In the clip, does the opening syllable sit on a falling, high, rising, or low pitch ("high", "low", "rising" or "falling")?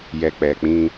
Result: low